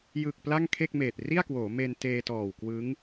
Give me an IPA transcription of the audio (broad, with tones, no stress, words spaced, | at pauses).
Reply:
jɯ˨˩k̚ pla˥˩ŋkʰe˥˩k̚meː˨˩t̚ ri˥˩a̯kwoː˩˦ me˧nteː˧tɔː˨˩wkwɯ˦˥ŋ